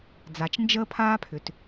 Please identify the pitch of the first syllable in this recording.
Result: low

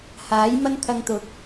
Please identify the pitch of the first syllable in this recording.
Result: rising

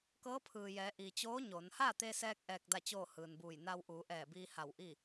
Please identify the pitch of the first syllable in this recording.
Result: rising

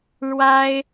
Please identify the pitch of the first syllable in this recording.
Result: high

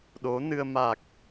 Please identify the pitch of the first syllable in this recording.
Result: rising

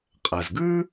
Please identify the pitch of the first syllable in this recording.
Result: low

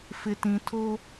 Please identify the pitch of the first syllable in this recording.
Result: low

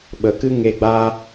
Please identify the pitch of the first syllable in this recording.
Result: low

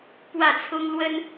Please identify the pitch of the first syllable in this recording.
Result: falling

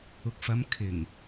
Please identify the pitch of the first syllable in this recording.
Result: low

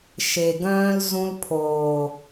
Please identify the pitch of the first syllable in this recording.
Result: low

